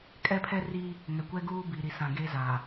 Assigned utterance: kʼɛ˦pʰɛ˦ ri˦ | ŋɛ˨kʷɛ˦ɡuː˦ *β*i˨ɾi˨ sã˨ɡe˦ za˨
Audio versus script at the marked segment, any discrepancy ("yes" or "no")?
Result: yes